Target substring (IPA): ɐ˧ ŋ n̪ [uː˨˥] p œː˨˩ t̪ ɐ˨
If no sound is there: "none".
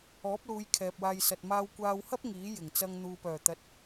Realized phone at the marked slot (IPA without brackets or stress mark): uː˨